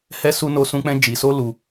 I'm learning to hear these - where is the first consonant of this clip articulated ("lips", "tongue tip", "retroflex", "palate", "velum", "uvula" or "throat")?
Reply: throat